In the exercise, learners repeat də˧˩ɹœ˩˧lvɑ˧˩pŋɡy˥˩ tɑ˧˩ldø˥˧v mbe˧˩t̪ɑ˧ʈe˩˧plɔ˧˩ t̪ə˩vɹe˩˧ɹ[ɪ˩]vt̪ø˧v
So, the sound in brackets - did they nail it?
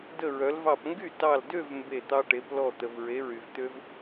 no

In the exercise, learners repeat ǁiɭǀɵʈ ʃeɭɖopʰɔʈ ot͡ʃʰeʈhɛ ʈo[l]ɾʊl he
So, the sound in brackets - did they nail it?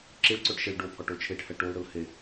yes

